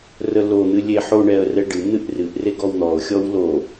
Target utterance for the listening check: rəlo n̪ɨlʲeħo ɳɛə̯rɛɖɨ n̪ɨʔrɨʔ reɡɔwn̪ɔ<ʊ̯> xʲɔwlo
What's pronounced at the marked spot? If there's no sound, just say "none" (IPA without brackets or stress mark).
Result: ʊ̯